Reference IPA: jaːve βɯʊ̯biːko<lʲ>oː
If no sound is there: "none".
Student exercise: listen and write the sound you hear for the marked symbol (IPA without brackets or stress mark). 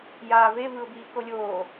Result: lʲ